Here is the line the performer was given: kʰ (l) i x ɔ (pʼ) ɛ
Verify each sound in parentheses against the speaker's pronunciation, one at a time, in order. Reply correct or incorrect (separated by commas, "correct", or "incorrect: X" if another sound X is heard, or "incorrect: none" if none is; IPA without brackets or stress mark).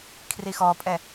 incorrect: r, correct